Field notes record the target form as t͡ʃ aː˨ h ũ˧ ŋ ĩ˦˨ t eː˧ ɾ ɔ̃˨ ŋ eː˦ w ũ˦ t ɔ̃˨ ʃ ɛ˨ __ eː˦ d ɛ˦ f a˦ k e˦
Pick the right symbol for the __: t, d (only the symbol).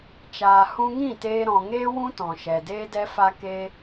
d